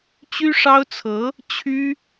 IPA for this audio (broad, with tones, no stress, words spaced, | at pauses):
t͡ɕy˥ʂɑ˥ʊ̯t͡sʰɤ˧˥ | t͡ɕʰy˥